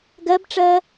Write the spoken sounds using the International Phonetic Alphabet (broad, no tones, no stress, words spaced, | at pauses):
ɡɜbʈ͡ʂɜː